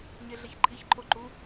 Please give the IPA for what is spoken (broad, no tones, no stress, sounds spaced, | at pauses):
ɲ e ɮ e ç ǃʼ i ç ǃʼ o ǃ u